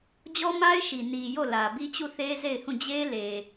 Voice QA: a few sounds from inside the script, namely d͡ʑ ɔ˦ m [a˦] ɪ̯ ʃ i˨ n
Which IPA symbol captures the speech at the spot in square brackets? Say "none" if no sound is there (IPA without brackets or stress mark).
a˦